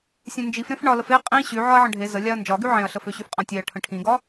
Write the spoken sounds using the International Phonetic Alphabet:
sʲ ẽ n d͡ʒ i f ɾ ẽ f ɳ ɒ l ə f e qʼ ĩ ɕ y ʕ ɒ ɐ̯ ʕ ə̃ ɖʱ e z ə lʲ a ɐ̯ n d͡ʒ ɒ ɡ y ʕ ẽ ɐ̯ ɬ ə f ø ɕ y f qʼ ã tʲ e ɐ̯ ʈʰ ə̃ ʈʰ ĩ ɡ ɒ

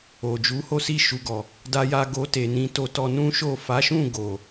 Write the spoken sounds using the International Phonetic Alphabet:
o˨ d͡ʒ u˨˦ h o˦ s i˦˨ ʃ u˨ ɡ ɔ˨ | d a˧ j a˧ ɡ o˧ t e˨ n ĩ˧ t o˧ t ɔ˧ n ũ˦ ʃ o˦˨ f a˨˦ ʃ ũ˦˨ ɡ o˨

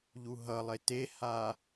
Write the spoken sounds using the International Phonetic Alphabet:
ʎ u ɦ ʌ lˠ e t e h a

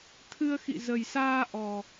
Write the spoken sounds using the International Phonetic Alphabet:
t̪ʰ ɨ˧ ə̯ x ḭ˧˨ z ə˨˩ j s aː˧ ʔ ɔ˨˩

